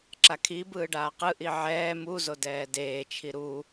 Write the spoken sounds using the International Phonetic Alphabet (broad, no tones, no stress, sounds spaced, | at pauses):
ǁ a kʰ i b ɯː ɖ aː q ɯ ʔ i ʕ ɛː m u z o d ɛː d eː t͡ʃʰ i ɾ u